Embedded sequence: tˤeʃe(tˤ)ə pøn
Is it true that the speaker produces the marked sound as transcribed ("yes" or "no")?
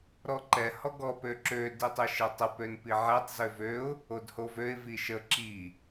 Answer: yes